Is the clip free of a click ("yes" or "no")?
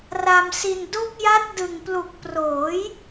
yes